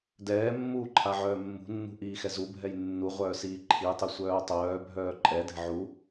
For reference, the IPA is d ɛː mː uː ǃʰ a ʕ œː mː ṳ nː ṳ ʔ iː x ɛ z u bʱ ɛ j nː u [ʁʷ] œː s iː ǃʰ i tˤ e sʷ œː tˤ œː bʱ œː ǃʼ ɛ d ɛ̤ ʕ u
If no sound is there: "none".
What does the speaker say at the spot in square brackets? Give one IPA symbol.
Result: ʁʷ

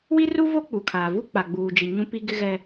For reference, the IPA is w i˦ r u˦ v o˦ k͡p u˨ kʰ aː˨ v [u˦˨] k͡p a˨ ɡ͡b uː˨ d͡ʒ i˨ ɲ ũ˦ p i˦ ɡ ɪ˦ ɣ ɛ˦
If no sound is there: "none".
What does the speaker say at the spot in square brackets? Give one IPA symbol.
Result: u˦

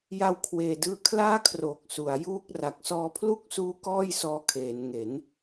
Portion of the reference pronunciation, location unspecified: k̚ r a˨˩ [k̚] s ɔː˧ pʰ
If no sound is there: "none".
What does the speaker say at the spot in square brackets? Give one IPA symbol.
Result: k̚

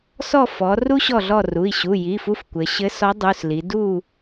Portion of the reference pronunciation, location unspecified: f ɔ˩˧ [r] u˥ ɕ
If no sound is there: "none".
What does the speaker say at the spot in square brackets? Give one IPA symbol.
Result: r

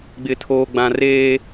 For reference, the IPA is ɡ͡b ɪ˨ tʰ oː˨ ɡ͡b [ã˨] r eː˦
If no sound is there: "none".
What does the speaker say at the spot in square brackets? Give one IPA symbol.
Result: ã˨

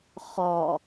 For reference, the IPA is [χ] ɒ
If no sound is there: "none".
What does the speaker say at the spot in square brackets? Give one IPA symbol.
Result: χ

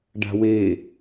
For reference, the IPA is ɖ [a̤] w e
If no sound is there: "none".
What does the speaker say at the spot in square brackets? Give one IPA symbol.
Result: a̤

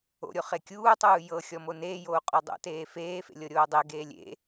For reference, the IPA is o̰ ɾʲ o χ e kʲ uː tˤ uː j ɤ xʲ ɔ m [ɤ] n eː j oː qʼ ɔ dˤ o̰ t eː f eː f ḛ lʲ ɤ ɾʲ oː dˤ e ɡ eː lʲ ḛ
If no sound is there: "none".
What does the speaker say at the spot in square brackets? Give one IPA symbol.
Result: o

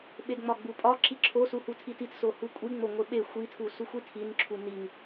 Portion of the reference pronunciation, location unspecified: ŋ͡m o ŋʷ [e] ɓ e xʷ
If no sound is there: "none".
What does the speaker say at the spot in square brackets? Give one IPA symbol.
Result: e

